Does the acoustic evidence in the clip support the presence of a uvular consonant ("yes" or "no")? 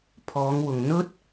no